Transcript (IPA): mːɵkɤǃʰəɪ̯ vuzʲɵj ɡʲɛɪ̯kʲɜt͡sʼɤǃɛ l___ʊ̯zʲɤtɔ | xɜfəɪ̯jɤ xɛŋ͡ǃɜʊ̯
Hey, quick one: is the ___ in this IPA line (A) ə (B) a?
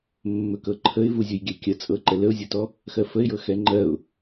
A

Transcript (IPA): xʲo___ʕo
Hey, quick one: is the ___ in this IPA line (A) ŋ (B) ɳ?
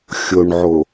B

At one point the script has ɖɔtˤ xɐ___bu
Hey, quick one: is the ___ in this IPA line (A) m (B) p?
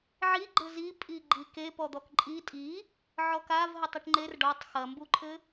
A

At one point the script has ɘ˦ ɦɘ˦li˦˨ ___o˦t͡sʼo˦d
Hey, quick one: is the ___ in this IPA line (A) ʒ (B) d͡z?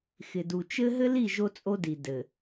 A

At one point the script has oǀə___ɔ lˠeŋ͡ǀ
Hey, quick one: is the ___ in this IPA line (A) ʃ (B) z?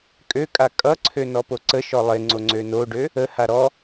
A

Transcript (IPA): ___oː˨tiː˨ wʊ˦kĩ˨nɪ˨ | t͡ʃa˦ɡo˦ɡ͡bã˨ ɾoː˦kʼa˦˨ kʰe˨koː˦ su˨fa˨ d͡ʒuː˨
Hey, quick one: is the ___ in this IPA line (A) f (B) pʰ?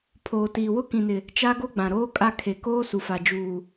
B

